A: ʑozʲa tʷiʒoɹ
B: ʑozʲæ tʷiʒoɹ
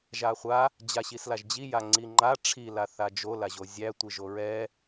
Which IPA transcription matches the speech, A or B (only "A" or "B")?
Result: B